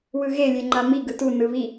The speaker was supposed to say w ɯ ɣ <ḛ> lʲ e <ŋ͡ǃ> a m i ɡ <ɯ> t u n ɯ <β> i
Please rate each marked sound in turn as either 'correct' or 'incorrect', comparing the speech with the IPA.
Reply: incorrect: e, correct, correct, correct

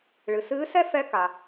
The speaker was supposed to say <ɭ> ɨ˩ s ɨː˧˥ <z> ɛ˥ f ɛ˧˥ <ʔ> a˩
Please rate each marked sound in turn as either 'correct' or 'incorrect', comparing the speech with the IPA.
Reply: correct, incorrect: s, incorrect: k

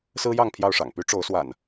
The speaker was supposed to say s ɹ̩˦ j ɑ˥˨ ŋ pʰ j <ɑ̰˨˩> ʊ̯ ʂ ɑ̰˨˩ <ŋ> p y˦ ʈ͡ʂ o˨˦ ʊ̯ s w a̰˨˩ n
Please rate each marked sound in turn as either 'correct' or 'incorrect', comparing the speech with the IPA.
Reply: incorrect: ɑ˥˨, correct

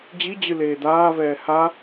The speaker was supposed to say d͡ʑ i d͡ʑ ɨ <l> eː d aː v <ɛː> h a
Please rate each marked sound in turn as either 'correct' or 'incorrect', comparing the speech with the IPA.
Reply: correct, correct

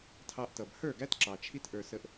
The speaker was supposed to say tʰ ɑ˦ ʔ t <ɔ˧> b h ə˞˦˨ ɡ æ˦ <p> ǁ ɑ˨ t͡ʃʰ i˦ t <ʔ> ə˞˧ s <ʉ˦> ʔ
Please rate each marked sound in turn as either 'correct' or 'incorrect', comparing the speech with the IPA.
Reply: incorrect: ʌ˧, incorrect: t, correct, incorrect: ə˦

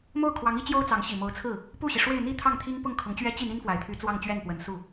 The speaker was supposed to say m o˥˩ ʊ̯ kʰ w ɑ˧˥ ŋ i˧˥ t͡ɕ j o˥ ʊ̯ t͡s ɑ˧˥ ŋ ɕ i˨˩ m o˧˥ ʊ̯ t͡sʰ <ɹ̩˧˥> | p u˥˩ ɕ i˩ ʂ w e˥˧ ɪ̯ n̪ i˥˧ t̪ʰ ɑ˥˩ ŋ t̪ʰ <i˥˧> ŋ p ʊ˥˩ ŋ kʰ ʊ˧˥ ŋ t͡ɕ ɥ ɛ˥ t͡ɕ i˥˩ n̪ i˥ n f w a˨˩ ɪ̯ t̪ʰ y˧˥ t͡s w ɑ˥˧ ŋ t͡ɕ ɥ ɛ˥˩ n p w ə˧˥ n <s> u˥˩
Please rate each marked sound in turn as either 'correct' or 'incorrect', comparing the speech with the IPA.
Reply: incorrect: ɹ̩˥˩, incorrect: i˥, correct

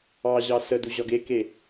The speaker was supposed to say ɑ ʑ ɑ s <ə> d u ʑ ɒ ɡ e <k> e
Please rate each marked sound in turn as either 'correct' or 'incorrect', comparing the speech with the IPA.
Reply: correct, correct

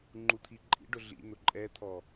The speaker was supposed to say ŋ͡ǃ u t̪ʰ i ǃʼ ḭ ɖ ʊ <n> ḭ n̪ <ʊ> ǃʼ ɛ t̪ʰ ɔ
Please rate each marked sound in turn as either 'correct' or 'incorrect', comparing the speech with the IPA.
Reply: incorrect: ɮ, correct

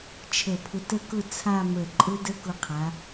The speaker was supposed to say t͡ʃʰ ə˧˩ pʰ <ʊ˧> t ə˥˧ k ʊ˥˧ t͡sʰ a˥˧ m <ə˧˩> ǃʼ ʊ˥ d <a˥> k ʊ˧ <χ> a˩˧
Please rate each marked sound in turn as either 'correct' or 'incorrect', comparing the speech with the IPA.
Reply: correct, correct, incorrect: ə˥, incorrect: qʰ

